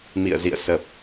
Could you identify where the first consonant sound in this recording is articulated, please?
labial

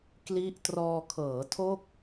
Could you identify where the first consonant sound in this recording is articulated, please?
velar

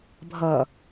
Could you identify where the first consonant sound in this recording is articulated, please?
labial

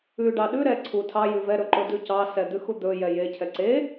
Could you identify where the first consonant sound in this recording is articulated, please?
retroflex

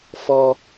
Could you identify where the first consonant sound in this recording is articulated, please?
labial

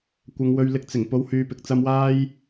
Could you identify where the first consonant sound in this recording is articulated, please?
velar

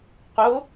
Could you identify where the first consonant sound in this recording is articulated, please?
uvular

